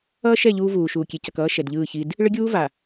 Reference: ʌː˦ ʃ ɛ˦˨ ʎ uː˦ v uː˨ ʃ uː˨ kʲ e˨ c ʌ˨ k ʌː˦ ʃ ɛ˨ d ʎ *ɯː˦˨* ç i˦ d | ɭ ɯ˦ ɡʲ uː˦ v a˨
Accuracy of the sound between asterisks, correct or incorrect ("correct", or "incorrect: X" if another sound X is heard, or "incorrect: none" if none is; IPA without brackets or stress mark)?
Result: correct